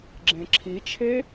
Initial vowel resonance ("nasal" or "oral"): nasal